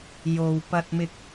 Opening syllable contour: low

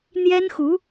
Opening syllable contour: high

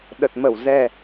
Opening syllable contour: low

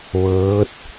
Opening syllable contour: rising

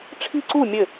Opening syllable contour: falling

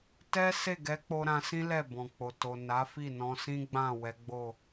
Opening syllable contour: high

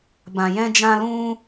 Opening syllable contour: low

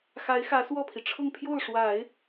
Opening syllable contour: rising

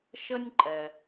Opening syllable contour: high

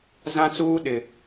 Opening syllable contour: high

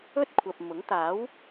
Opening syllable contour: high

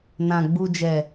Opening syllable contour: low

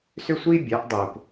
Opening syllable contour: high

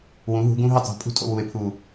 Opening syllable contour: rising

